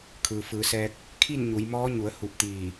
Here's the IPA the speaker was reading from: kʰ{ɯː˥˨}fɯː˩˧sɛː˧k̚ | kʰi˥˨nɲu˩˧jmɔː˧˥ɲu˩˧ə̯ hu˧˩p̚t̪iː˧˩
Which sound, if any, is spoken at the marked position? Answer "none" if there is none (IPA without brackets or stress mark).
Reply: ɯː˩